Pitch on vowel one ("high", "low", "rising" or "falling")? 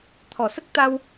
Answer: low